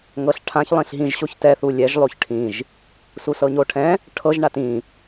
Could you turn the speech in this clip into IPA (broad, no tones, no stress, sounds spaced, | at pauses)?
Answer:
ŋ ɤ ɬ ʈʰ ã ç lˠ ĩ ɬ ɦ ĩ ʒ ɕ o ç t ɛ θ u lʲ ɛ ʒ lˠ o ç ʈʰ ĩ ʒ | s u s ɤ ɲ o ʈʰ ɛ̃ | ʈʰ ɤ ʒ ɳ a t ĩ